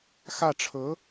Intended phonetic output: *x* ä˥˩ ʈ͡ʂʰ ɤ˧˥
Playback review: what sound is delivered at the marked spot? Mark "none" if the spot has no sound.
x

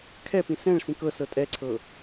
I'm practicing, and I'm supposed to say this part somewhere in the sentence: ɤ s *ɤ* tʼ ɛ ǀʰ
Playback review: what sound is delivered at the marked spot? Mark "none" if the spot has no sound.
ɤ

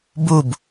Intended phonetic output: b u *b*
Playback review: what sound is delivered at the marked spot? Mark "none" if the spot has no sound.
b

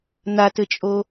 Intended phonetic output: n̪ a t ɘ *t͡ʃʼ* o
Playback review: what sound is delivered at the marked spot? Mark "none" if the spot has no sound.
t͡ʃʼ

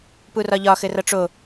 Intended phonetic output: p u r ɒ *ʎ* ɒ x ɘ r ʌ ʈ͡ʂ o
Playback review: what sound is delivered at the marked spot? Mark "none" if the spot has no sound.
ʎ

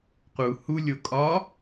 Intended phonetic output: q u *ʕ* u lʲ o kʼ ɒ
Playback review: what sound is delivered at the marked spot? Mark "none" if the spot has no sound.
h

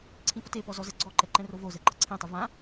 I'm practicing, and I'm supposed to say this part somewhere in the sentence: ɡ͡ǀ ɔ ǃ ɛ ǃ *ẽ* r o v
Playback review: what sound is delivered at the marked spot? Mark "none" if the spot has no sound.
ɛ̃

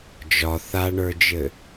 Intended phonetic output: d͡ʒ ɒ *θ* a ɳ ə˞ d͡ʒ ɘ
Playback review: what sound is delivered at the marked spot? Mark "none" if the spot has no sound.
θ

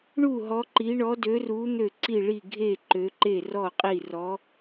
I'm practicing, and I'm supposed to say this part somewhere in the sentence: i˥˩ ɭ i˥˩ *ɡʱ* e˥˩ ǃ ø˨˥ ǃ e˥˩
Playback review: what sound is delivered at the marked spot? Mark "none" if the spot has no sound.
ɡʱ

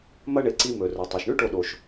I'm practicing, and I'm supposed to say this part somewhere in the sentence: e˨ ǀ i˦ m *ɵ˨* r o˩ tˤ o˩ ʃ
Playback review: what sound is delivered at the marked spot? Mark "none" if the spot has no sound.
ɵ˨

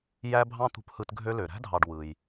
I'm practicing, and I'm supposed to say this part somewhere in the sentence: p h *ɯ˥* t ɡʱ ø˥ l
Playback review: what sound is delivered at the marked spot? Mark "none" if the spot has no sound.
ɯ˦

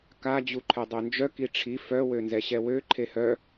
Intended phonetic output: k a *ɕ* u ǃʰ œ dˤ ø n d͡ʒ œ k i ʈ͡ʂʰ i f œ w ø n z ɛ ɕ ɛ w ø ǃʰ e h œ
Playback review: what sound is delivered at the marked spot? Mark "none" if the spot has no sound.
d͡ʑ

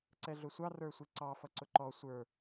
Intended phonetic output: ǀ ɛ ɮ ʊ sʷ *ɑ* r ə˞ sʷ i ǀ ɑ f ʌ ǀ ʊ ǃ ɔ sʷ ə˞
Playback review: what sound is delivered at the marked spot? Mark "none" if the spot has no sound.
ɑ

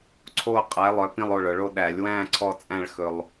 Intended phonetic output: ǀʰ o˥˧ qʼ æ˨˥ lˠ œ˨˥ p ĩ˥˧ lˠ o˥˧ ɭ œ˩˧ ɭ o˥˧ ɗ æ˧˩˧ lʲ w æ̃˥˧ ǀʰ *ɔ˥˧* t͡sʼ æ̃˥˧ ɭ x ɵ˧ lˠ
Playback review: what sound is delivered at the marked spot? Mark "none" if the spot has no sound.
ɔ˥˧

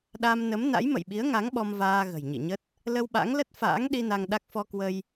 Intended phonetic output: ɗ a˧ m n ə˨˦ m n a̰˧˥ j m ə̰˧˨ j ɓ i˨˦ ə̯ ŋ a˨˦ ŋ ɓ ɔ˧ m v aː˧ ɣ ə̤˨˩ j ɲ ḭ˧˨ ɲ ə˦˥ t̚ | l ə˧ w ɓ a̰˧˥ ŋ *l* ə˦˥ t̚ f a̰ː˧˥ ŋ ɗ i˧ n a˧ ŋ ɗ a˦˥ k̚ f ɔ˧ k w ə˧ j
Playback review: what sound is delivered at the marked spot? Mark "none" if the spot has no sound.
l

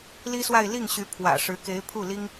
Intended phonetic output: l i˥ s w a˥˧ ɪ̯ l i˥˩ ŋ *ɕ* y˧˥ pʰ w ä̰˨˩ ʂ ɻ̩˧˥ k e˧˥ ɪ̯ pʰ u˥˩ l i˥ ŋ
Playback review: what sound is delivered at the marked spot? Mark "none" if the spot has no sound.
ɕ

